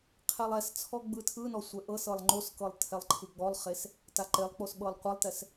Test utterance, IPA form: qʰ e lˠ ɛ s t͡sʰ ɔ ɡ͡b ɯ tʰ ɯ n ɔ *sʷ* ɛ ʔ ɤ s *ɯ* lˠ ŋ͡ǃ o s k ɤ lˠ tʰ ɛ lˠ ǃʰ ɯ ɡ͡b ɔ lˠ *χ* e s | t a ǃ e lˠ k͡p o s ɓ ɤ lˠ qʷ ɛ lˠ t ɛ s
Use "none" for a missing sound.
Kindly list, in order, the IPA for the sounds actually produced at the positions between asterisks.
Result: sʷ, ɤ, χ

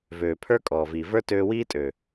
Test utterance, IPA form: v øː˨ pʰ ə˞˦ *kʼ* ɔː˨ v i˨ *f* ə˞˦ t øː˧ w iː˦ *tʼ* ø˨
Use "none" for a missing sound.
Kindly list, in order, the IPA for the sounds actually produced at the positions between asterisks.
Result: kʼ, v, tʼ

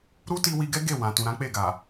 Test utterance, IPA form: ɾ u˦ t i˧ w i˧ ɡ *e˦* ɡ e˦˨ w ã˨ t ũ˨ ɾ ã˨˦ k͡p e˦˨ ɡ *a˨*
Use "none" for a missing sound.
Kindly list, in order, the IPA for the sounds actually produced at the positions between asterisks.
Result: ɛ˦, a˨

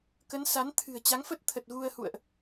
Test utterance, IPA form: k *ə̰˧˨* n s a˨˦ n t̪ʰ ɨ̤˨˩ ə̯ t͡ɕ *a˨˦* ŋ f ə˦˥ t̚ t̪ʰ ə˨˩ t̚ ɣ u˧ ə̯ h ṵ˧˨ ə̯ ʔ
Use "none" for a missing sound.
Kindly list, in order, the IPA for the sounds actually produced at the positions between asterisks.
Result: ə˨˦, a˨˦

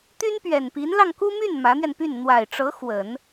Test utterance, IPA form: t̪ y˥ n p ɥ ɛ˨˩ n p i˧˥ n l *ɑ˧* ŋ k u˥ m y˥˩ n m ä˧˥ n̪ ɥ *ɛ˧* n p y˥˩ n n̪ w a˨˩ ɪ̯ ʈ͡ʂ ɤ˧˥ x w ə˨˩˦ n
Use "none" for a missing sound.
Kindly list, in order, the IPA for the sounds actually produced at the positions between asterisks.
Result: ɑ˧, ɛ˧

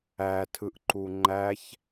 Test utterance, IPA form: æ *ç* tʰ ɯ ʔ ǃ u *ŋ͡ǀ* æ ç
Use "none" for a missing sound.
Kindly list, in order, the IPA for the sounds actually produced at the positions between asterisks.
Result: none, ŋ͡ǃ

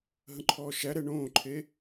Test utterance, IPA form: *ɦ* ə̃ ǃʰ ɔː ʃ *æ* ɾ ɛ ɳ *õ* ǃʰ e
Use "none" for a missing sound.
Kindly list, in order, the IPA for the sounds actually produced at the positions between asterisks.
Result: ɦ, æ, õː

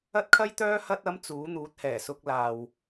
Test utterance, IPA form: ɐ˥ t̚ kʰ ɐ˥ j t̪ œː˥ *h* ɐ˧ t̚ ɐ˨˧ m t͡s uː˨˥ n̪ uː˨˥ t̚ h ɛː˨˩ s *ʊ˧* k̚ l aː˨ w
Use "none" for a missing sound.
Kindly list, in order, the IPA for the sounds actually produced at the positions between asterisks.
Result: h, ʊ˧

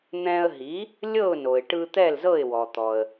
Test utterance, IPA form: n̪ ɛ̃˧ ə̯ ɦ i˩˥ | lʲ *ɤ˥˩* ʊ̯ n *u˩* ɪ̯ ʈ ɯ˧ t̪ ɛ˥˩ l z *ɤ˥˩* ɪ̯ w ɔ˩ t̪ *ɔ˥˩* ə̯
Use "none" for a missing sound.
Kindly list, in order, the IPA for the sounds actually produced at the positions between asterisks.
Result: ɤ˥˩, o˩, ɤ˥˩, ɔ˩

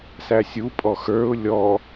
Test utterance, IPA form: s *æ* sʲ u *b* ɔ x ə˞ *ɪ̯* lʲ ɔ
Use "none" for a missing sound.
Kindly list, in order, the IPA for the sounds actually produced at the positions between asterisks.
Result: æ, pʼ, ʊ̯

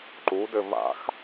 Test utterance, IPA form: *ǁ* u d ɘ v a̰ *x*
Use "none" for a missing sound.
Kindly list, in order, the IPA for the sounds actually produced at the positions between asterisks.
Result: ǃ, x

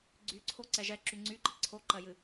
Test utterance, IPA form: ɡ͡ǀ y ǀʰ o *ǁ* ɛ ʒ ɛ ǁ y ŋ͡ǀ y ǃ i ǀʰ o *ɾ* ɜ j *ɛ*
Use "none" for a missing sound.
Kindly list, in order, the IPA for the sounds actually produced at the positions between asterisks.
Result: ǀ, ǃ, ɨ

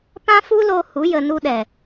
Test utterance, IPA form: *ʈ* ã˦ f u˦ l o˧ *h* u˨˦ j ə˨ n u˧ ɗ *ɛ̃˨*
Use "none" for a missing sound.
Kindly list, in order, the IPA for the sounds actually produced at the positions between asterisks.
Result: p, h, ɛ˨

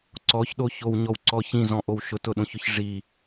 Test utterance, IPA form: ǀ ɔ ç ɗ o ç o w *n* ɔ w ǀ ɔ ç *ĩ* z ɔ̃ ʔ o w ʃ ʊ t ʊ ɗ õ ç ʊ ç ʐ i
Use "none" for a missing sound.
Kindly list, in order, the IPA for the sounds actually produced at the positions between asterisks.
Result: ɲ, ĩ

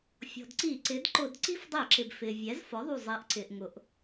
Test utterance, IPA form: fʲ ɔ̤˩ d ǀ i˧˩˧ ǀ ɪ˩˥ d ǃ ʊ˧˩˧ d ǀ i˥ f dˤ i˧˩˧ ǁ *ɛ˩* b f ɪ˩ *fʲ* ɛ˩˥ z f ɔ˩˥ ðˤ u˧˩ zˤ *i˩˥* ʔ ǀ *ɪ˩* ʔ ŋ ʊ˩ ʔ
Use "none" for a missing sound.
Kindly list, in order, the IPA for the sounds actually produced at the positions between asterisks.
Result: ɪ˩, vʲ, i˩˥, ɪ˩

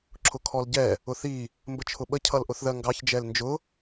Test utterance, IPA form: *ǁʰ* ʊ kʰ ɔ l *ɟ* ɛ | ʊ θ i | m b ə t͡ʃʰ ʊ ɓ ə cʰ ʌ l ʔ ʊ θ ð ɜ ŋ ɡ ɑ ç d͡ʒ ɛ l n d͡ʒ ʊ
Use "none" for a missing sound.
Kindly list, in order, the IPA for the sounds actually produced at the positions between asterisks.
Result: ǁʰ, ɟ

